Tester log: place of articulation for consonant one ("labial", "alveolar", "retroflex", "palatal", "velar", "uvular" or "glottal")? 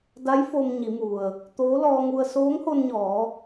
alveolar